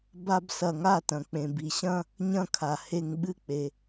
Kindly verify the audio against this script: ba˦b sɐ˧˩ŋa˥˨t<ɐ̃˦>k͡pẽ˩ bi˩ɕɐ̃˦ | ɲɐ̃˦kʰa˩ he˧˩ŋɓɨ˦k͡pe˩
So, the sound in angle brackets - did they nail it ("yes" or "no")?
no